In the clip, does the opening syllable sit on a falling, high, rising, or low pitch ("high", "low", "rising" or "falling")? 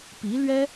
rising